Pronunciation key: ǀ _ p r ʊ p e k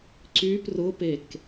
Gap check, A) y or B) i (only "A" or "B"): A